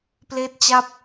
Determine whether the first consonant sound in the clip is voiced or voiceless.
voiceless